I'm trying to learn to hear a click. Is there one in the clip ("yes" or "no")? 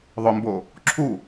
yes